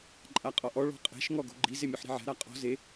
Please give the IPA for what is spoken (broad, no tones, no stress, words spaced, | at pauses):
ǃʼaqʼɔʔɔ ɭɔ̤qʼɛ̤ʃ ŋɔɡo̤ɡ͡ǃi zemʲuħɾi̤ʕɛ̤ ɾaqʼɔ̤ ze